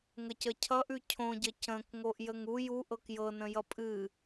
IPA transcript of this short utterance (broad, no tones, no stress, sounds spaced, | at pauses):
ŋ ə c ə cʰ ʌ ʔ ʉ cʰ õ ɟ ə c ə̃ k ŋ o ʔ j ə ŋ u j u ʔ ɤ k j ɤ n ə̃ j ʌ pʼ ɨ